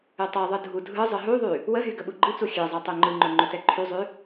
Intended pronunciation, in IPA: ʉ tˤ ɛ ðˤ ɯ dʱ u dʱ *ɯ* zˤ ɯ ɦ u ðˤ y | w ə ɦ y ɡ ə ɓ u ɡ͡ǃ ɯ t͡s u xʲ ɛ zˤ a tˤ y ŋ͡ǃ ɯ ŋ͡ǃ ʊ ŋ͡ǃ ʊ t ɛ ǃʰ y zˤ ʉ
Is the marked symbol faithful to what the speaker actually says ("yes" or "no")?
yes